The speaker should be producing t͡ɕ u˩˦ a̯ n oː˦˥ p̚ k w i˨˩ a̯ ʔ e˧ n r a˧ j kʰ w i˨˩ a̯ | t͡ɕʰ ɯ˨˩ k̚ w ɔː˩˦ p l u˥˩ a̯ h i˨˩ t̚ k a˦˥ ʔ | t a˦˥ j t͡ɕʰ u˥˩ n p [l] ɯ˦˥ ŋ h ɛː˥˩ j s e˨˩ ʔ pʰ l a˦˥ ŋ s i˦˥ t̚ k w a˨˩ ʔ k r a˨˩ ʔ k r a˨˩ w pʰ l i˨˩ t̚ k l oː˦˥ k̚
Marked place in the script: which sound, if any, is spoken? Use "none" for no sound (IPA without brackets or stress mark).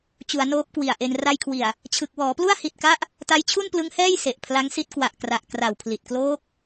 l